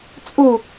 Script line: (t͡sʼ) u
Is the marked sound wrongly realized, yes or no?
no